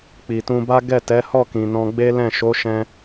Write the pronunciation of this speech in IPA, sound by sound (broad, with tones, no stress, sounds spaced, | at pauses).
k͡p i˨ t ũ˧ b a˦ ɡ ɛ˦˨ t ɛ˨˦ h ɔ˦˨ k ĩ˨ n ɔ̃˧ ɡ͡b e˦ l ɛ̃˦˨ ʃ o˨˦ ʃ ɛ̃˧